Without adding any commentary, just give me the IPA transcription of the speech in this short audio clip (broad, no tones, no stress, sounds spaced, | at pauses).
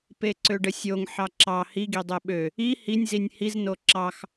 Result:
p e ǀ ø ɖ ə sʲ o ŋ ħ ɑ ǁ ɑ h i ɡ i dˤ e ɓ ø | i h i nʲ z i nʲ h i z n o ǁ ɑ x